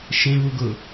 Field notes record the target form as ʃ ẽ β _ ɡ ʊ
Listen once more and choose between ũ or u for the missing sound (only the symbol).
u